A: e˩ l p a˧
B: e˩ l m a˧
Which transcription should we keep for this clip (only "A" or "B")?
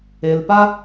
A